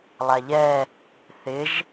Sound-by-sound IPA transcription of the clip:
lˠ a ʎ ɛ | θ ɪ ʒ

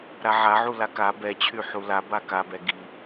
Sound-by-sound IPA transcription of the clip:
ɾ a ʕ a ʕ u l a k a b ɛ t͡ɕʰ y ħ u l a b a k a b ɛ ɡ i

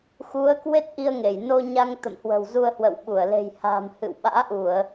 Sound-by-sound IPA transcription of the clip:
x u˨˦ ə̯ k w e˦˥ t̚ ʔ i˧ ə̯ ŋ e˧˩ j n o˧ ɲ a˧ ŋ t̪ ə̰˧˨ m h w ə̤˨˩ w z u˧ ə̯ h w ə̰˧˨ w ɓ u˧˩ ə̯ l e̤˨˩ j h a̤ː˨˩ m h ɨ̰˧˨ w ɓ a̰ː˧˥ ʔ u˧˩˨ ə̯

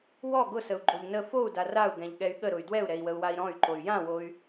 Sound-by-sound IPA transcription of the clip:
w ɔ ɡ ʊ s ə u̯ ɡ͡ǃ o ʎ n ə f o u̯ d a r a u̯ ɡ ɛ̃ ʎ ɠ ɛ y̯ ɠ ə ɾ ʊ y̯ d w ɛ u̯ ɾ ɛ i̯ w ə u̯ w a i̯ ɾ ɔ̃ y̯ ǃ o y̯ j ã w o y̯

